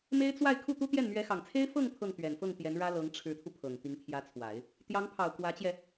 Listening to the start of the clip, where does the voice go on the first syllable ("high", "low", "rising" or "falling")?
high